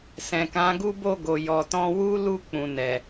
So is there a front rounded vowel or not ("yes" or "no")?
no